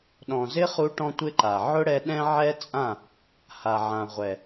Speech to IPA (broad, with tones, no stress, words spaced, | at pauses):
ɗɔ̃˨zɪ˦χu˧ʈɔ̃˧ tʷɪ˦ǃa˨ ʕʊ˦ɽɛ˧ ɗɛ̃˦ʕɛ˦t͡sʼã˦˨ | ha˨ʕã˨ ʁʷɛ˨